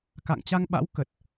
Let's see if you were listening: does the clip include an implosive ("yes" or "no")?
yes